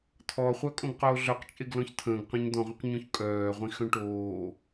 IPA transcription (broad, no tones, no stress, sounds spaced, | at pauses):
t̪ʰ ɔ χʷ œ kʼ õ ɡ q oː ɮ œ q t͡ʃʼ e ɡ l ɔ̃ ç t̪ʰ ə̃ː ɡ q ɔ̃ ɲ d̪ ɔ̃ ʁʷ œ̃ q ɲ õ ç kʼ œː ʁʷ ĩ x œ̃ ʈ oː